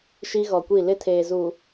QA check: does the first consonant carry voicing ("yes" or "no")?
no